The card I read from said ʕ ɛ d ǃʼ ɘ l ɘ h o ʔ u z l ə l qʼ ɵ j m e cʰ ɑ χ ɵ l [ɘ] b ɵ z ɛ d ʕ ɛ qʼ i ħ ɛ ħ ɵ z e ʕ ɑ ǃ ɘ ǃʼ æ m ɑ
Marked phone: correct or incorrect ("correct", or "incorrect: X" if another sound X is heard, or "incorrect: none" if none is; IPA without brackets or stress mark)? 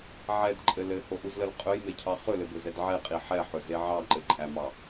correct